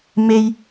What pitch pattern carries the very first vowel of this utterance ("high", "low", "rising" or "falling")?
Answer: high